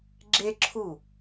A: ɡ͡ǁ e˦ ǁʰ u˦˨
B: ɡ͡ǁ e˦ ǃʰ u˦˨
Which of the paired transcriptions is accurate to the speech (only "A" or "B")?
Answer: A